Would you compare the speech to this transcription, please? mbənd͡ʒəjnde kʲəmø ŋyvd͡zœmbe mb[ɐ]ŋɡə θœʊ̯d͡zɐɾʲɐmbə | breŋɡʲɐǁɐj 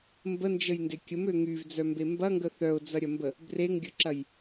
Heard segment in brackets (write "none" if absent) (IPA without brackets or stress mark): ɐ